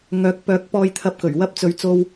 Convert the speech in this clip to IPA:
ŋœː˨˥k̚ pœː˨˥k̚pɔː˧j t̪ʰɐ˧p̚kɵ˨˩ɥ wɐ˥p̚t͡sɵ˨˥ɥt͡so˧w

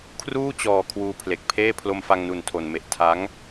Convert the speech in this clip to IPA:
kʰruː˥˩t͡ɕɔː˨˩ kʰwuː˧pʰle˨˩k̚pʰeː˥˩ pʰlo˧mfa˧ŋnu˨˩n tʰo˨˩nme˨˩ʔ tʰa˦˥ŋ

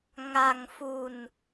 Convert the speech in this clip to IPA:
ŋa˧ŋfu˧n

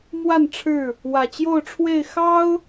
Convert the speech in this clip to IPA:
mwa˥˨nʈ͡ʂʰɻ̩˥˨ | wä˨˩t͡ɕjo˥˨ʊ̯ʈ͡ʂʰwe˥˨ɪ̯ xɑ˦ʊ̯

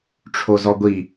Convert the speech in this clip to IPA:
ʈ͡ʂʰozɔɡʷi

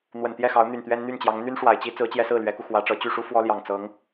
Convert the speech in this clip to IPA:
n̪wə˨˩nt̪jɛ˥˩xɑ˧˥ʊ̯ n̪y˨˩nt̪ɥɛ˥nn̪y˥˩nt͡ɕjɑ˧˥ŋ n̪y˥nʂwa˨˩ɪ̯t͡ɕi˥ t͡sɹ̩˧˥t͡ɕjɛ˥sɹ̩˥˩ lɥɛ˧˥ku˧xwä˧˥ʈ͡ʂɤ˧˥ t͡ɕy˥˩ʂu˥ fwɔ˥ljɑ˨˩ŋ t͡sɤ˧˥ŋ

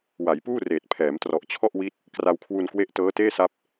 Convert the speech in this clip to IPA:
wa˩˦jpuː˥˩reː˨˩t̚ pʰɛː˩˦mtrɔ˨˩ʔt͡ɕʰɔ˥˩ʔwi˦˥t̚ | kra˧wkʰwu˧nkwe˦˥ʔ tɤː˦˥teː˥˩sa˦˥p̚

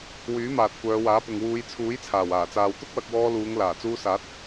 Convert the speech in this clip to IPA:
wyː˨˥maː˨t̚ kʷœː˨˧waː˨˥pʊ˨ŋ wuː˨˧jt͡sʰuː˨˥jt͡sʰaː˨˩w aː˨˩t͡saː˨wt̪ʊ˥k̚ wɐ˧k̚wɔː˧luː˨˧ŋ laː˨˩t͡suː˧saː˨˥t̚

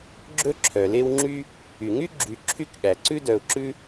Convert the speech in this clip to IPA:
ɡ͡ǁɵ˦ ǁʰœ˩le˦wŋ͡ǁy˥ | y˩ŋy˥ ɡ͡ǁy˨ ǁʰy˦kɠæ˩ǀʉ˥dœ˨ʊ̯ ǁʉ˥

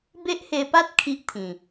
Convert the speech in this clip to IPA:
be˦ʔhe˧pa˦t̚ kʰi˦ʔt̪ʰĩ˨˩

